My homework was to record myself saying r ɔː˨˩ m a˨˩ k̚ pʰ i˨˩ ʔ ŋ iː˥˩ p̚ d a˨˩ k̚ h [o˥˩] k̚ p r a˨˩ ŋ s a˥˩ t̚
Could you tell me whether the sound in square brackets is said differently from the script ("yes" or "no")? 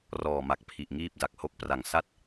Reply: yes